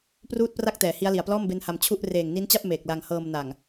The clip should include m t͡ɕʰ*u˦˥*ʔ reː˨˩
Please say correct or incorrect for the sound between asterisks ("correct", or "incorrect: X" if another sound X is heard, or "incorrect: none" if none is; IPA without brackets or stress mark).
incorrect: u˥˩